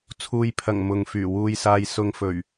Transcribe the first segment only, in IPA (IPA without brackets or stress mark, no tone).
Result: t͡sʰ